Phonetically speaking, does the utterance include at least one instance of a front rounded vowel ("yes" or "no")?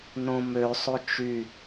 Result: yes